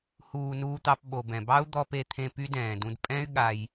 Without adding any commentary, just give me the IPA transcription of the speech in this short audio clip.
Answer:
h uː˨ n uː˧ t̪ ɑ˧ p ɓ o˨ b ɛ̃˨ b ɑ˦ u̯ d̪ ɔ˧ p e˧ t̪ʰ ẽ˧ p y˦ d ɛ̃ː˨ d ũ˧ d pʼ ɛ̃˦ y̯ ɠ a˧ j

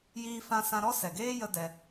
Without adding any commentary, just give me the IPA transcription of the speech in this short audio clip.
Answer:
j iː˦ f ã˧ s ã˧ ɾ ɔ˦ s ɛ˨ ɡ eː˦ j ə˦ d ɛ˧

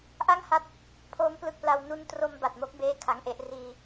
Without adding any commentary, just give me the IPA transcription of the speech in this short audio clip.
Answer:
ʔ a˥˩ ŋ h a˦˥ t̚ | pʰ oː˦˥ m p l ɯ˦˥ k̚ p l a˧ w n u˧ n t r o˧ m b a˨˩ t̚ m o˦˥ k̚ b eː˥˩ kʰ a˦˥ ŋ ʔ e˥˩ ʔ r iː˧

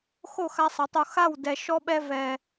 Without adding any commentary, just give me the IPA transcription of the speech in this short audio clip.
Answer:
x o˦˨ x a˧ sˤ ə˨˦ tˤ o˧ x a˦˨ w d ɛ˧ ʃ ɔ˦ ɓ ɛ˦ v ɛ˧

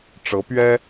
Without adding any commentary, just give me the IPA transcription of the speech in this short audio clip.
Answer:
ʈ͡ʂ ɤ˧˥ p ɥ ɛ˥

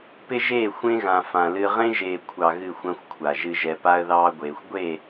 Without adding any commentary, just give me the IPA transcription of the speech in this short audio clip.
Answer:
p ɪ˦ ʒ eː˦˨ xʷ ẽ˦ ɣ ã˨ f ã˨ l ɨ˦ ʁ ẽ˦ ʒ eː˨ kʷʰ ɑ˨ ɣ ɨ˦˨ xʷ ã˦ xʷ kʷʰ a˨ ʒ ɨ˨ ʒ ɛ˨ p a˦ ə̯ ð ɑː˦ ɡʷ eː˨ xʷ ɡʷ e˦˨

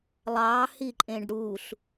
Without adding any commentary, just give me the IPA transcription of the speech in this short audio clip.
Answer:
lˠ ɑ h i ǃʼ ẽ ɖ ɽ u ɬ

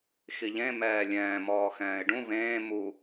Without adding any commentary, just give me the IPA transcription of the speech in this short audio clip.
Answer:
x i ʎ ẽ m ɛː lʲ ɛ̃ː m ɔː x ɛ̃ː ɪ̯ ɖ ũ v ẽː m u

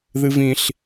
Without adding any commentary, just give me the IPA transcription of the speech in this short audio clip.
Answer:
ð ɨ v ĩ ɬ

